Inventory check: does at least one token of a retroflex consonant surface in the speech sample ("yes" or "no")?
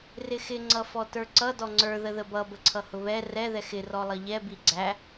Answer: no